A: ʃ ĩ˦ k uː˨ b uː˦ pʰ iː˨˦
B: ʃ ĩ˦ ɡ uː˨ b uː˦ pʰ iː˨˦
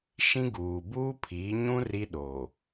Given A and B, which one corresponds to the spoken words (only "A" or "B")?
B